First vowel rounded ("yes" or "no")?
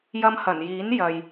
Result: no